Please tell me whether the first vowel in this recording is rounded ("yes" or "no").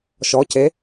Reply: yes